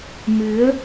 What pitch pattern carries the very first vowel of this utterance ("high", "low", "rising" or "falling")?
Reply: rising